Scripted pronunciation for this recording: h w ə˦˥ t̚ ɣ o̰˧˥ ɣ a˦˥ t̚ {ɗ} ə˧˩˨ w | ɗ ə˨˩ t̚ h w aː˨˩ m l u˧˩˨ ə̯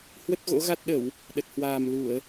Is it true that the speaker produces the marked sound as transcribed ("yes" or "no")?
yes